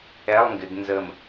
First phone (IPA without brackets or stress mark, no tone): ɛ